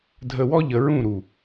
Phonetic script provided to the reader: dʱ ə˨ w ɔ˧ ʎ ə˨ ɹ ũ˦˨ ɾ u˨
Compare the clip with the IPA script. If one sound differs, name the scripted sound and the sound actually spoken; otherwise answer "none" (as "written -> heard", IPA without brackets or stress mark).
none